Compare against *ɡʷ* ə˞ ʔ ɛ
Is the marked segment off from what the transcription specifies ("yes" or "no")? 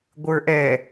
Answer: no